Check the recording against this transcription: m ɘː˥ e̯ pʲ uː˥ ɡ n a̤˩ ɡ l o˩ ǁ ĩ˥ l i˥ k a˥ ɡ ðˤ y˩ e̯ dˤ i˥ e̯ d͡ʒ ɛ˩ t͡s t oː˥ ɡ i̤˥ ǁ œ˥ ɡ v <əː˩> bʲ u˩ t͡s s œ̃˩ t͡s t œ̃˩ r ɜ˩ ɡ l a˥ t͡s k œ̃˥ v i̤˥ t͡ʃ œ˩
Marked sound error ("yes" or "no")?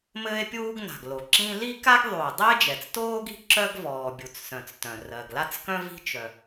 yes